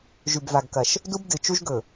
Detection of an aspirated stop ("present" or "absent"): absent